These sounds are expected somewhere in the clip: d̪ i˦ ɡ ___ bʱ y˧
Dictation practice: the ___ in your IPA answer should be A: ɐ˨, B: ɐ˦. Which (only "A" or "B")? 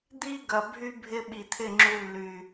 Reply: A